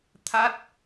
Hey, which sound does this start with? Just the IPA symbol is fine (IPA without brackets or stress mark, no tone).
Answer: t̪ʰ